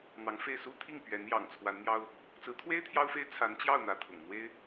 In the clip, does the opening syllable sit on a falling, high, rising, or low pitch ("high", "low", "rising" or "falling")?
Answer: rising